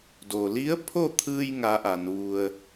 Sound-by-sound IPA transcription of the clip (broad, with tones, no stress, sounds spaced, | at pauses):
d o˩ l i˧˥ ə̯ pʰ o˥˨ t̪ʰ ɯː˧ j ŋ a˧˥ ʔ a˩˧ n ʋ u˧ ə̯